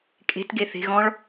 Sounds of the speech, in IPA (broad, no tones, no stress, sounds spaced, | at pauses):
kʼ e̤ t ɡ e θ e̤ ɣ ɔ̃ ɭ